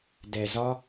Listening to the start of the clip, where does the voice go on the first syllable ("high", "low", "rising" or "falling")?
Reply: low